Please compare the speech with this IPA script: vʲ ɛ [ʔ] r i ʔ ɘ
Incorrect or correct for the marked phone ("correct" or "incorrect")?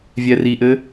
incorrect